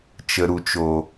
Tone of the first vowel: low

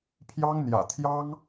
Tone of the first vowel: high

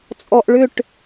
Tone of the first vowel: low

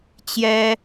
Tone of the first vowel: high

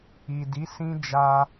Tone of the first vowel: low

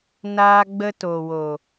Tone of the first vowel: high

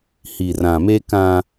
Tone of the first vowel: low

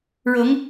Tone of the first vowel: rising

